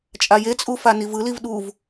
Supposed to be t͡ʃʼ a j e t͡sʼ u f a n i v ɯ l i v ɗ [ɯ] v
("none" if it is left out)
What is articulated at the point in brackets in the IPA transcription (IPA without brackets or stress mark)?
u